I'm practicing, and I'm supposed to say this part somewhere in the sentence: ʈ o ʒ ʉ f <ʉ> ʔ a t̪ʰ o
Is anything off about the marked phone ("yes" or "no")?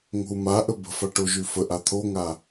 yes